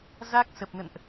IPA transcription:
z a˦˥ k̚ s ə˨˩ p̚ n ə̰˧˨ n ʔ

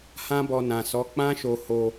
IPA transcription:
h ã˦ b ɔ˧ n ã˨ s ɔ˨˦ k͡p ã˦ ʃ o˧ h o˧

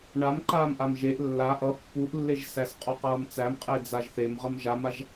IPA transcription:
ɳ a m ǃ aː m ʔ a m ʒ e ʔ lː a ʔ ʌ pː u ʔ lː e ʒ s æ s qʼ ɔ q ʌː m t͡s æ m qʼ e d͡z a ʒ θ e m ʁ ʌ m ʒ a m a ʒ

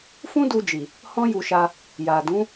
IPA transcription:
f ũ˦ d u˧ d͡ʒ i˨ | h ɔ̃˦ j u˧ ʃ a˧ | j a˨ d ũ˨˦

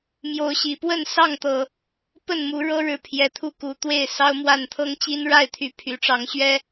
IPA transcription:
m j o˨˦ ʊ̯ ɕ i˨˩ p w ə˥˨ n s ɑ˥˨ ŋ t̪ ɤ˨˩ | p ə˥˨ n m u˨˦ ɻ ɤ˦ ɻ ɻ̩˨˦ pʰ j ɛ˨˦ t̪ʰ u˥˨ k u˨˦ t̪ w e˥˨ ɪ̯ s ɑ˦ ʊ̯ m w a˥˨ n t̪ʰ ɤ˦ ŋ t͡ɕ i˦ n ɻ a˥˨ ɪ̯ t̪ʰ y˨˦ pʰ y˨˩ ʈ͡ʂ ɑ˨˦ ŋ ɕ ɥ ɛ˦

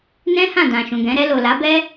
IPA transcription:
n ɛ̃˦ h ã˦˨ d ã˨ ʃ ũ˨ ɡ ɛ̃˨˦ ɾ ɛ˧ l o˨ l a˨˦ b ɛ˦

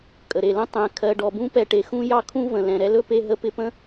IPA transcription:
kʼ ə˨ ɾ e˨ l ə̃˦ tˤ ɛ̃˨ kʰ ɜ˨ ɖ ɔ˨ b ũ˦ p ɛ˧ ʈ e˨ x ũ˦ j ɑ˦ kʰ ũ˦ v ə̃˨ l ɛ̃˨ ɾ ɛ˧ l ɵ˧ p e˧ ɦ ə˧ p ɪ˧ p ə̃˦

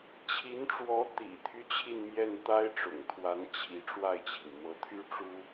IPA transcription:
t͡ɕʰ i˧˥ n ʈ͡ʂ w ɔ˧˥ t̪ ḭ˨˩ t̪ʰ y˦ t͡ɕʰ i˥˧ n m j ɛ˥˩ n t̪ a˥ ɪ̯ ʈ͡ʂ ʊ̰˨˩ ŋ t̪ʰ w a˧˥ n t͡ɕʰ i˧˥ ʈ͡ʂ w a˥˩ ɪ̯ t͡ɕʰ i˩ ŋ m ɤ˧˥ t̪ʰ y˥ ʈ͡ʂ u˥

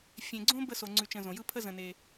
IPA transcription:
fʲ ẽ˨ ɡ͡ǀ õ˥ b ə˦ s o˨ ŋ͡ǀ ʉ˨ t͡ʃ ə̃˨ z õ˩ j ɯ˦ pʰ ə˦ z ə̃˨ n e˨

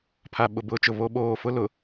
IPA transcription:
pʰ a˨ ɓ ʊ˨ b ʊ˨˦ t͡ʃ ʊ˨ β o˦ ɓ oː˦˨ f ʊ˦ l ʊ˨

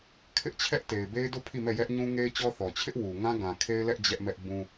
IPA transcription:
kʰ ɪ˦ ʔ t͡ɕʰ ɛ˦ ʔ t e˨ ɪ̯ b e˦ ɪ̯ d o˦˨ pʰ i˦˨ m ɛ˦˨ j ɛ˦ ʔ ɲ ũ˦ ŋ e˦ ɪ̯ t͡ɕ ɔ˦ θ ɔ˨ t͡ɕʰ ɪ˦ ʔ w u˨ ŋ ã˦ ɡ ã˨ kʰ e˦ ɪ̯ l ɛ˦ ʔ d͡ʑ ɛ˦ ʔ m ɛ˦ ʔ b ũ˦

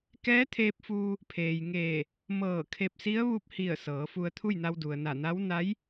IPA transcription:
k ɛː˧˥ t̪ʰ eː˧ p̚ f uː˧ | pʰ eː˩ j ŋ eː˧˩ | m ɤː˧˩ kʰ e˧ p̚ s i˧˥ ə̯ ʋ u˧ p̚ h i˧˩ ə̯ s ɤː˩˧ f u˧ ə̯ t̪ʰ u˥˨ j n a˧ w d u˩ ə̯ n a˧˩ n a˧˥ w n a˧˥ j

